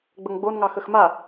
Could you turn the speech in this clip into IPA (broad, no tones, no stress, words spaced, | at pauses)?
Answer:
ɡ͡bəŋɡ͡bon ŋɑxəxma